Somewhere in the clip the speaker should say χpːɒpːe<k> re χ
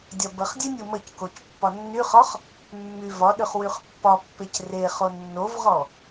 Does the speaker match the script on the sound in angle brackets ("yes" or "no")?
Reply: no